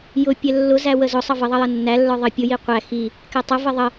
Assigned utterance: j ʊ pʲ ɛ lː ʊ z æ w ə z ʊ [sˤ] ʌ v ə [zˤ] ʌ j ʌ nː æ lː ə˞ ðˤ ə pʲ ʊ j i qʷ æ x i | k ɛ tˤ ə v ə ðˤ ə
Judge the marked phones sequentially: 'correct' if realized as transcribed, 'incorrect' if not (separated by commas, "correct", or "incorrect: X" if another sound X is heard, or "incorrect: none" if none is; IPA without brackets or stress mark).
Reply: correct, incorrect: ðˤ